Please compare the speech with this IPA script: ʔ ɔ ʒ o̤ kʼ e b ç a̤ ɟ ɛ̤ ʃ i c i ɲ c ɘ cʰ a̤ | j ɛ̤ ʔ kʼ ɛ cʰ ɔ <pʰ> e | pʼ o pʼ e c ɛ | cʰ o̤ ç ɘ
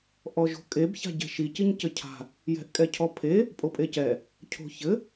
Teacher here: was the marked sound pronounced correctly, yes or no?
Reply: yes